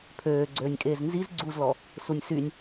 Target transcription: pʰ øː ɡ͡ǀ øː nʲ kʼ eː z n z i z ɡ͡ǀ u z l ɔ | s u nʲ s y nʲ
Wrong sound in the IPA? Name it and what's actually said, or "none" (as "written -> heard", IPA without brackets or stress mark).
none